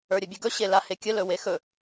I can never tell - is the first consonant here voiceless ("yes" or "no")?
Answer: no